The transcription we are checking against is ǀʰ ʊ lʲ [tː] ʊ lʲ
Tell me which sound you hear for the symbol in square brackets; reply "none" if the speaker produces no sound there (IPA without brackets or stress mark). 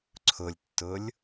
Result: tː